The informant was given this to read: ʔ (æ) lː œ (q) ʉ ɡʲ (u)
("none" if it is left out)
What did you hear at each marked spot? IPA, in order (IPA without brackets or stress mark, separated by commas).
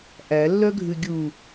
æ, ɡʱ, u